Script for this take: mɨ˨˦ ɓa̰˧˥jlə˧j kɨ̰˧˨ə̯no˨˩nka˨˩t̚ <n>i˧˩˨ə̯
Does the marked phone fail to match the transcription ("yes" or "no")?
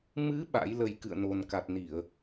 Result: no